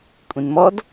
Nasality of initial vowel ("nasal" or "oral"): nasal